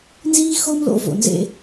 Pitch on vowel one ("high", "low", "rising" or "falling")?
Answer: high